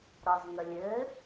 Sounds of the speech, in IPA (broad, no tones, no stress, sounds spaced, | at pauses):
ɾ ɒ z ŋ ə lʲ ɘ